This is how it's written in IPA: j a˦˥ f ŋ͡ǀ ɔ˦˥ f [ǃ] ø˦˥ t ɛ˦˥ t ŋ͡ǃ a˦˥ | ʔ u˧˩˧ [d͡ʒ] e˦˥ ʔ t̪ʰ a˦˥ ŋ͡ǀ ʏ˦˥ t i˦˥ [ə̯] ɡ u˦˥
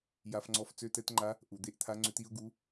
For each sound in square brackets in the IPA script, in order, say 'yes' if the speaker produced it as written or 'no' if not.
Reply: no, no, no

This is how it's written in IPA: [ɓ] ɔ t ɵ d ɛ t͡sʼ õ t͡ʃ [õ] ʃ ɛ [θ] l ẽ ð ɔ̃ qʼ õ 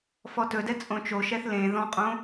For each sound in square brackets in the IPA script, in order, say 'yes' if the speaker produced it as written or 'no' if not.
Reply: no, no, yes

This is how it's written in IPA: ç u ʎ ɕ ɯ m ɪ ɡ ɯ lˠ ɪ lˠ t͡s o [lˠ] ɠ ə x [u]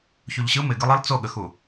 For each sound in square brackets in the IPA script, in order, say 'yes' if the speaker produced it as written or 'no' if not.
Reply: no, yes

